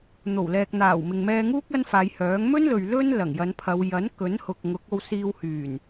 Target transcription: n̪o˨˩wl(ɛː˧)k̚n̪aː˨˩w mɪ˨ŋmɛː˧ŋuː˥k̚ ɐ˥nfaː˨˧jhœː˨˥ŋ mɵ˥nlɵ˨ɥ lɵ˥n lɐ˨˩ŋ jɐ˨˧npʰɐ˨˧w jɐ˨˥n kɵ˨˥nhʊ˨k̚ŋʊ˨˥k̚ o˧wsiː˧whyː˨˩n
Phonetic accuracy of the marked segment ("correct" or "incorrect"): incorrect